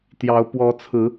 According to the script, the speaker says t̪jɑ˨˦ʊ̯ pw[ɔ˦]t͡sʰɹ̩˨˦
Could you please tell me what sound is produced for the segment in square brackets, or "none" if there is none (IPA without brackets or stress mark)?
ɔ˨˦